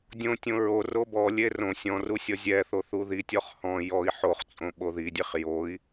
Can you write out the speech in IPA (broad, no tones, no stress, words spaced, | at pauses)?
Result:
dʲõtʲõ ɹo robɔlʲe rõ sʲɔ̃ru sʲɔzʲɛθo θuðitʲɔχ hɔ̃ jɔi̯ ħoχt͡sʼõ ɓoðidʲeχ joi̯